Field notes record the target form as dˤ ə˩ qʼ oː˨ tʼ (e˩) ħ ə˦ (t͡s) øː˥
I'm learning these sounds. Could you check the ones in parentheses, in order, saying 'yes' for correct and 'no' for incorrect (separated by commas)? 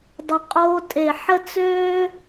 yes, yes